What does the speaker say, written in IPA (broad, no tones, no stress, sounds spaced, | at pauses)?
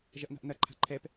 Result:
ʒ ɐ ʔ n a̤ ʔ n ɐ ǃʰ a̤ ǃʰ ɛ p